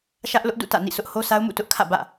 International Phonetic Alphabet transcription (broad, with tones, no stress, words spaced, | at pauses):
ʃä˦ʔlʊ˦ʔdṵ˦˨ tä̰˦˨nḭ˦˨ sʊ˦ʔho˦sa˦ʊ̯mṵ˦˨ tʊ˦ʔkʰä̰˦˨bä̰˦˨